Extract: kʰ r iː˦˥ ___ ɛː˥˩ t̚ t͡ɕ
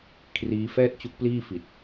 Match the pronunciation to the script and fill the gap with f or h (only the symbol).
f